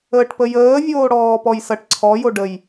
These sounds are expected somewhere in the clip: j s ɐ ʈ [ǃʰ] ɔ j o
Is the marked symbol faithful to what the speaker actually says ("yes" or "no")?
no